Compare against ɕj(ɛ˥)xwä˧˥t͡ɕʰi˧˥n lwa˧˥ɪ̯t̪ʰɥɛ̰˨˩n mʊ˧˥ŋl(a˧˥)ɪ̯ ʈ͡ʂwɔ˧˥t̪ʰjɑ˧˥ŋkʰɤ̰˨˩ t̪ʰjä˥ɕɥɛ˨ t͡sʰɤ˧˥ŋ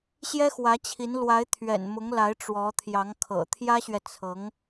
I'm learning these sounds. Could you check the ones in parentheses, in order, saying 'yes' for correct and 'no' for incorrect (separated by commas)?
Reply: yes, yes